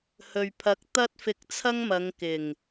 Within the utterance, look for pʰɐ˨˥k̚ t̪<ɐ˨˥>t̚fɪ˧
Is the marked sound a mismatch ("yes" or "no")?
yes